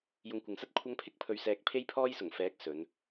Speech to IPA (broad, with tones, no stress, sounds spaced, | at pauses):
j ʊ˧ ŋ kʷ ɪ˨ ŋ s ɐ˥ t̚ kʷʰ ɐ˧ ŋ pʰ ɪ˥ k̚ pʰ ɵ˨ ɥ s ɛː˨ k̚ pʰ e˥ j pʰ ɔː˥ j s ʊ˨˩ ŋ f ɛː˨˥ k̚ s ɵ˨˧ n